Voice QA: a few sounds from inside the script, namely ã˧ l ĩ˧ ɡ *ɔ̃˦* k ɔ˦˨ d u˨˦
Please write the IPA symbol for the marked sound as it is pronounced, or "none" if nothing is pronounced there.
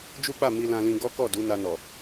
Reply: ɔ˦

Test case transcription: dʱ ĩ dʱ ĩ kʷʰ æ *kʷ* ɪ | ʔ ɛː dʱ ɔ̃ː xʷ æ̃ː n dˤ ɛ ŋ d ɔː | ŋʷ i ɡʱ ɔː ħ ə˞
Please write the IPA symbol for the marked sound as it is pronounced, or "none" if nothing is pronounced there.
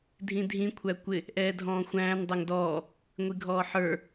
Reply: kʷ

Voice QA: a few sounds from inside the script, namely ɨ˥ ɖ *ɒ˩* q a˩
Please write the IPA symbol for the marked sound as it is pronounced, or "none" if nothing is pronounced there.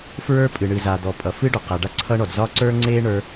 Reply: ɒ˩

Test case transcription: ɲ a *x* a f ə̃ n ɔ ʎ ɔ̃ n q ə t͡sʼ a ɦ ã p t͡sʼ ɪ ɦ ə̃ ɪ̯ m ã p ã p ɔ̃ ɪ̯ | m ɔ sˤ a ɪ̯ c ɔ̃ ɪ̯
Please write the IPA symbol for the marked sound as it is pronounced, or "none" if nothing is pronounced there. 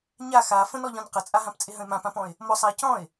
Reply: x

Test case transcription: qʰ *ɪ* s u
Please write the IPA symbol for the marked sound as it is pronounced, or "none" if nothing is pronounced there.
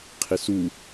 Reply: ɪ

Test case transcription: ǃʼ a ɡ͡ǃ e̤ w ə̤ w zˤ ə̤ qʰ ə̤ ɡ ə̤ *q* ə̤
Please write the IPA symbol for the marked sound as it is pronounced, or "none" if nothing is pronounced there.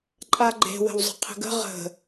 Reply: ʁ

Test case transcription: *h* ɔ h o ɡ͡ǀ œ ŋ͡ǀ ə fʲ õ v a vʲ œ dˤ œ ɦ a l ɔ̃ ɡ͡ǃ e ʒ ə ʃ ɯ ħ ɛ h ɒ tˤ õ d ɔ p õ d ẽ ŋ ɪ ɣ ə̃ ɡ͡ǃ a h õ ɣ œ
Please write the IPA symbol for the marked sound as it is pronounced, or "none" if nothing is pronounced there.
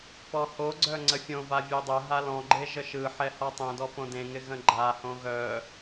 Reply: p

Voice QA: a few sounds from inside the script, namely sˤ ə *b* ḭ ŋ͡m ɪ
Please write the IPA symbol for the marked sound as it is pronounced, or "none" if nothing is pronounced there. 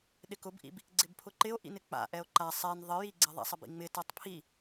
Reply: b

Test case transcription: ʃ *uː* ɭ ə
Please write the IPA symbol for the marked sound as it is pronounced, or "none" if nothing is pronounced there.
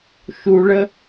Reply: u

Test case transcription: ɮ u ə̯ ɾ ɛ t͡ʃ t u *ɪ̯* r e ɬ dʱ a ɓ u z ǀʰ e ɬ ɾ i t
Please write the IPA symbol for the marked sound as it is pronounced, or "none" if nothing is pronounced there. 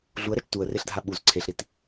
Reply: ə̯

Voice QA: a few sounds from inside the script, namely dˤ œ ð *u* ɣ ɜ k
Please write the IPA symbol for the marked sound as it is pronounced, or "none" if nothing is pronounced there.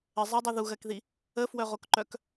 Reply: u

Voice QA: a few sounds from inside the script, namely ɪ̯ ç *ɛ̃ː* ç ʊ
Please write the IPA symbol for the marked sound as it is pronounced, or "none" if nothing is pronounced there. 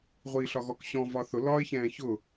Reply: ɛ̃ː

